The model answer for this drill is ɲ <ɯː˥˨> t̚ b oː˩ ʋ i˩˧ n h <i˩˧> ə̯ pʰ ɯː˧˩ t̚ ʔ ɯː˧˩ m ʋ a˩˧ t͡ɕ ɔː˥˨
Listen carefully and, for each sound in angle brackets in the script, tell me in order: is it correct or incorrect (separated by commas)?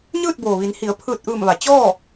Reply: correct, correct